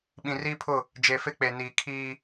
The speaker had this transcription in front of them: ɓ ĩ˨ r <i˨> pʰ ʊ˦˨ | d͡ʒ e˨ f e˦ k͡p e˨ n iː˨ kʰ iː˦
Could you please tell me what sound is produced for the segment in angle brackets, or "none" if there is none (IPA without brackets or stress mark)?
i˦